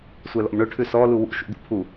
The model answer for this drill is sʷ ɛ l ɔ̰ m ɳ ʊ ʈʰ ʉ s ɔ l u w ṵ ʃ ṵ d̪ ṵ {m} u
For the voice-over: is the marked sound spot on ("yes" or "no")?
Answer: no